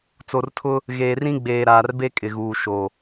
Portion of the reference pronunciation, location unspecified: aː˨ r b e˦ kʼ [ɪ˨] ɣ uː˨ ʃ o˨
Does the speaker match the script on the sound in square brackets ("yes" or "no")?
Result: yes